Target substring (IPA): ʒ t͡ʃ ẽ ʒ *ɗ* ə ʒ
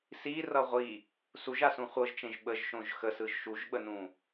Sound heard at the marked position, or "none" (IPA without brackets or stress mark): ɓ